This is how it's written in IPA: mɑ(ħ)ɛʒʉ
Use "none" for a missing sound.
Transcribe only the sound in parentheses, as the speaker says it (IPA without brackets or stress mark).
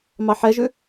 ħ